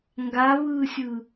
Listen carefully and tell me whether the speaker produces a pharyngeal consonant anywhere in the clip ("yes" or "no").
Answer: no